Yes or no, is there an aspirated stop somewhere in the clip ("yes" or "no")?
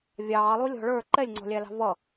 no